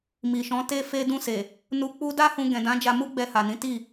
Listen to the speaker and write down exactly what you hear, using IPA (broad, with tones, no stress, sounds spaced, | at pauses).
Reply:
m i˨ ʃ ɔ̃˨˦ t e˧ f e˧ d ũ˧ s e˨ | n u˧ k͡p u˦ d a˦ h ũ˧ ɡ ɛ̃˨ d ã˨˦ d͡ʒ a˧ m u˦ ɡ͡b ɛ˧ h a˨ n ĩ˨˦ t i˦˨